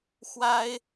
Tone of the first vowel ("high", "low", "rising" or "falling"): high